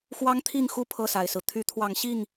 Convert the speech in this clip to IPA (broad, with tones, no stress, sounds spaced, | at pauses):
x w ɑ˦ ŋ t̪ʰ i˥˨ ŋ x u˦ pʰ ɤ˥˨ s a˨˩ ɪ̯ s ɹ̩˦ t̪ʰ y˨˦ t̪ʰ w ɑ˨˦ ŋ ɕ i˥˨ ŋ